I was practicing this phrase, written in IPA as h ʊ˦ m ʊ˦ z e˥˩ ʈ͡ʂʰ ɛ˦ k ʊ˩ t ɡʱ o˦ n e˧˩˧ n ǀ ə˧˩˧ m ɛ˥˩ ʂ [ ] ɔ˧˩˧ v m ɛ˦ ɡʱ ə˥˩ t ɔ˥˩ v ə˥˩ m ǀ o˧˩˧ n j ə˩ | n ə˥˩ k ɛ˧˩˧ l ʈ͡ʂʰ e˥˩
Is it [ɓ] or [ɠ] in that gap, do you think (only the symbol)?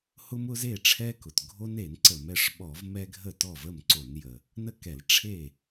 ɓ